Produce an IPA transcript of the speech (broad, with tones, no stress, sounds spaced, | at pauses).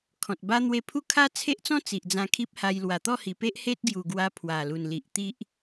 kʰ ɔ̃˨ t̚ b a˦ n̪ w e˧ pʰ u˦ kʰ a˦ t͡sʰ e˦ ʔ t͡s ɔ̃˦ t͡s i˨ ʔ d͡z ã˧ kʰ i˦ p̚ h a˧ j l w a˨˩ t̪ ɔ˥˧ h i˨˩ p e˦ ʔ h e˦ t̚ ɡ j u˨˩ ɡ w a˧ pʰ w a˨˩ l u˨˩ n l i˨ ʔ t̪ i˦ ʔ